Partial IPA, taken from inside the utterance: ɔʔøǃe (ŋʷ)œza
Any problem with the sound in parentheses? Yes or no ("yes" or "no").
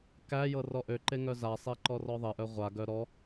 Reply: yes